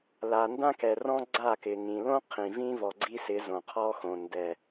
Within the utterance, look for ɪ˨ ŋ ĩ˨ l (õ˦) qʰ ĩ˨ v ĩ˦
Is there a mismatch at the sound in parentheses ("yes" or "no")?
no